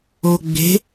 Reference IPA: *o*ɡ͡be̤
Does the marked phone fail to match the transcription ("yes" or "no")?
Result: no